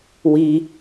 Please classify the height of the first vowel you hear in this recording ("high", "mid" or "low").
high